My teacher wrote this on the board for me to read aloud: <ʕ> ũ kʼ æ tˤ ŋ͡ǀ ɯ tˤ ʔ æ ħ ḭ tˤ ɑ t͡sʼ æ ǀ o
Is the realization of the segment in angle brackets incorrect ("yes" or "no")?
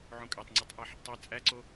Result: no